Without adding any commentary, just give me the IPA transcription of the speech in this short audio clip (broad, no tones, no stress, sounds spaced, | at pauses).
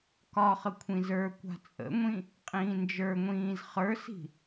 k ɒ χ ə kʷʰ ĩ z ə˞ kʷ a̤ t͡sʼ ə̰ ŋʷ ĩ | qʼ ĩː n d͡ʒ ə˞ ŋʷ ĩː z χ ə˞ s i̤